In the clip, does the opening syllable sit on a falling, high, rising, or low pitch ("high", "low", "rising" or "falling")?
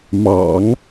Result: low